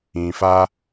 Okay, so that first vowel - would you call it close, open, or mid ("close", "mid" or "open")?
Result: close